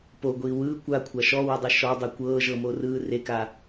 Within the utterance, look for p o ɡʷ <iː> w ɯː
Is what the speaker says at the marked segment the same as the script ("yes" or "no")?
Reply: yes